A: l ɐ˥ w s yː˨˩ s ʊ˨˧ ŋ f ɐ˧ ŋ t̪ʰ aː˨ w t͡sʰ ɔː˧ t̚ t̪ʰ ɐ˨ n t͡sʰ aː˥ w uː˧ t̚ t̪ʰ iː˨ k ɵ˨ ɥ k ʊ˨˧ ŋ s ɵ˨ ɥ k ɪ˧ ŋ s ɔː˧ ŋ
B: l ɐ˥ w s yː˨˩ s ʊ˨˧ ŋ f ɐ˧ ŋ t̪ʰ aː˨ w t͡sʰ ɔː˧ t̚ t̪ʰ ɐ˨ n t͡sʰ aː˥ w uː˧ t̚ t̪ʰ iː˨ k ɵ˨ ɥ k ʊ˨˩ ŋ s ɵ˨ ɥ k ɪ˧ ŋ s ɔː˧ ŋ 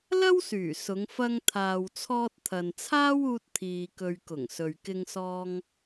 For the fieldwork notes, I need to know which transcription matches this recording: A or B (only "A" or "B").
B